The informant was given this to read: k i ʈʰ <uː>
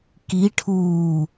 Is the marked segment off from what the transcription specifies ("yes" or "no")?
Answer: no